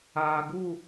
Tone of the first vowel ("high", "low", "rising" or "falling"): low